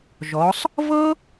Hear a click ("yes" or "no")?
no